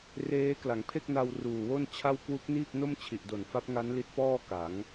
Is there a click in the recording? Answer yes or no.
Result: no